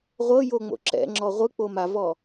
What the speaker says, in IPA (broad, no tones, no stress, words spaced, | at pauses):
ʁʷɤjoŋ͡mo̰ ǁɛ̰ŋ͡ǁɔ ʁʷɯk͡po mavɔ